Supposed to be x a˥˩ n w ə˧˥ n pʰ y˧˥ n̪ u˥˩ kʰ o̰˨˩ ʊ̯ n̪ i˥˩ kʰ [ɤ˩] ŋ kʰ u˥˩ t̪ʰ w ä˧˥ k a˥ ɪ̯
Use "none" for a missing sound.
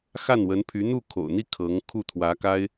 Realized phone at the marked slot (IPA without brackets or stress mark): ɤ˧˥